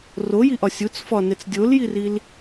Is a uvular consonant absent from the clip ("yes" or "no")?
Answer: yes